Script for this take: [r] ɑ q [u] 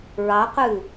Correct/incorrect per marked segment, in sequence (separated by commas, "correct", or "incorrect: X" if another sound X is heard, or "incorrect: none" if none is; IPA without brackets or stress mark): incorrect: ɹ, incorrect: ʉ